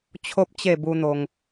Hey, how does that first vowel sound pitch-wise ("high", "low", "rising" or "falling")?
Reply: high